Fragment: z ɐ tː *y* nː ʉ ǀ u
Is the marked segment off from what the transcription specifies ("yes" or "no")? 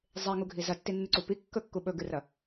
yes